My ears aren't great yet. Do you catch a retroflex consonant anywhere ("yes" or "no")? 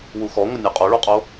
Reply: yes